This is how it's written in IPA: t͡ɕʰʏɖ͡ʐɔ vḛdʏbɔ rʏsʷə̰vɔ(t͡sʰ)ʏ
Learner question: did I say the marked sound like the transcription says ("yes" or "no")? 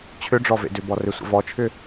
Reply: no